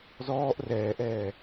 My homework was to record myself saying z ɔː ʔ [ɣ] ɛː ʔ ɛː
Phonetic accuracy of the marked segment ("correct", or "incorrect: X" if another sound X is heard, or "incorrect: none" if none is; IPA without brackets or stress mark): incorrect: r